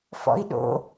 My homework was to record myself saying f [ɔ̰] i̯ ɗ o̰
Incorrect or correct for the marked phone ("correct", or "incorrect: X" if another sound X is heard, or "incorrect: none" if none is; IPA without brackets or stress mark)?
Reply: correct